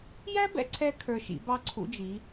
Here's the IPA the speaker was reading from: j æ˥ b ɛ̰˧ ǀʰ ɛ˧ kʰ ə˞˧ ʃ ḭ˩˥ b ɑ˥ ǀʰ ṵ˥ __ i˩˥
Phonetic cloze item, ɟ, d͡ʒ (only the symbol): d͡ʒ